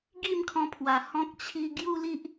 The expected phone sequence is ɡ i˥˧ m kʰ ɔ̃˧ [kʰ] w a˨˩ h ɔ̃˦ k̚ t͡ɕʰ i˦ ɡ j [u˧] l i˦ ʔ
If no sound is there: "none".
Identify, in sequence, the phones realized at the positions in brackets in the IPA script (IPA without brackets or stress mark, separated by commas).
pʰ, u˦